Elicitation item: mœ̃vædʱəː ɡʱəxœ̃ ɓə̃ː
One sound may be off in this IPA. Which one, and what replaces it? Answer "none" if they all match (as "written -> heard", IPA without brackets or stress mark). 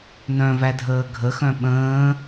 m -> n